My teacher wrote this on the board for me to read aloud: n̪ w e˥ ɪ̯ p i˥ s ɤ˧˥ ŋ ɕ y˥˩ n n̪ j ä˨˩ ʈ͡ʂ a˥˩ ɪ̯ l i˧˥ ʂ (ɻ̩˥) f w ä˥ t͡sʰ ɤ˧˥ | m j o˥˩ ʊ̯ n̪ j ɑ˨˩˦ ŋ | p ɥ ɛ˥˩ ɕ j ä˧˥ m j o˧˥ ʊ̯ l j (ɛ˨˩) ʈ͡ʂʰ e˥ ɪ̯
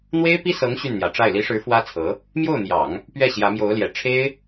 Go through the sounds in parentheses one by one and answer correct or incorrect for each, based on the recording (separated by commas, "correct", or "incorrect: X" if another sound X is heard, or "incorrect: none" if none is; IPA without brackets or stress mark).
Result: incorrect: ɻ̩˧˥, correct